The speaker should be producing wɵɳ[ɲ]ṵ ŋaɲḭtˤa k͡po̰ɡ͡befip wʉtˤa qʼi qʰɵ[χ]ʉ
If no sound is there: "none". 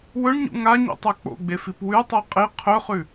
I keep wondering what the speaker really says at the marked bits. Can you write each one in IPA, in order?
ɲ, χ

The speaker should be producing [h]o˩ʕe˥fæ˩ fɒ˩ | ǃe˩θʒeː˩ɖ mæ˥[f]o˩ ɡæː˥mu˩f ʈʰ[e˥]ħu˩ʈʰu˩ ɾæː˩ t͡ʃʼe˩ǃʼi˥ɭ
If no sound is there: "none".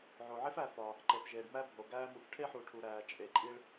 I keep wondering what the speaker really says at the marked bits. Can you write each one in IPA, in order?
ʕ, bʱ, e˥

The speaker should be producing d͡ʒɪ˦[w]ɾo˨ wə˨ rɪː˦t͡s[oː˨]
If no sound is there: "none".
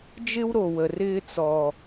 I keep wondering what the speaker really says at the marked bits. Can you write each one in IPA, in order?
w, ɔː˨

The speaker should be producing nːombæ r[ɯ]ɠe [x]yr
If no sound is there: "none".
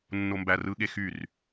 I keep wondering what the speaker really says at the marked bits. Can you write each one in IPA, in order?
ɯ, x

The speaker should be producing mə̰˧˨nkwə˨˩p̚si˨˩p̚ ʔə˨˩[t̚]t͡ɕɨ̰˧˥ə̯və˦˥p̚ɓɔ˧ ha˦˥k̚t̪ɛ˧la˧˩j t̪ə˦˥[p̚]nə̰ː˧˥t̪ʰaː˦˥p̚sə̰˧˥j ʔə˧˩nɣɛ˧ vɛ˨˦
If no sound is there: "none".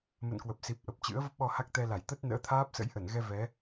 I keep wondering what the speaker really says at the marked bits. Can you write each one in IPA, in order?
p̚, t̚

